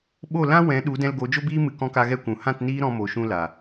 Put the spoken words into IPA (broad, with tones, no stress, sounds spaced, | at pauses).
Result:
ɓ o˦˨ l ã˦ w ɛ̃˨˦ ɗ u˨˦ d ɛ̃˧ l ɡ o˨˦ d͡ʒ o˦ b iː˦ m ɨ˧ k ɔ̃˦ k a˦ ɣ ɛ˧ kʷ ũ˨ h ã˦˨ t n iː˦ ɾ ɔ̃˧ m o˨ ʃ ũ˧ l a˨